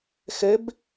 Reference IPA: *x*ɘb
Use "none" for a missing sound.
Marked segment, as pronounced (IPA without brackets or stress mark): x